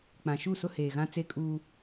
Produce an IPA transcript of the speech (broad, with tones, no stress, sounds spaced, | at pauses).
k͡p ã˨ ʃ u˦˨ s ʊ˦ h eː˨ ɣ ã˦ t͡s e˦ kʼ uː˦